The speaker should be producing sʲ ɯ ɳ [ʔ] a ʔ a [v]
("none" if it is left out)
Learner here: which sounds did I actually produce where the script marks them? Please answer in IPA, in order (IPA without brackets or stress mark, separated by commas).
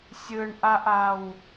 ʔ, w